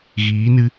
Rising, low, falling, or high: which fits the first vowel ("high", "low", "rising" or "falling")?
rising